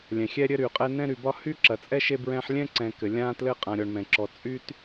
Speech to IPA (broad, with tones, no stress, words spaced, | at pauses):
lʲɛ̃˩xʲɛ˦ ɾʲɘ˦ɾy˩ qʼɛ˦nɛ̃˥ ɾy˨bɒ˥ hy˥ǁɐ˨t͡sʼɛ˥ ʃe˥bɹɛ̃˦ħ lʲɛ̃˥ ǀɛ̃˨kɘ˩ lʲã˥ tlɘ˦qʼã˨ɾʲɔ˨ɳ mɛ̃˩ǁɔ˨ t͡sʼy˥t